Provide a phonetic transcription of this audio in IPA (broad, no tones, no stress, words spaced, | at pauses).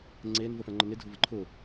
ŋ͡ǀen vəfɛ̃ŋ͡ǃəne dʱʊvəǃʰʊ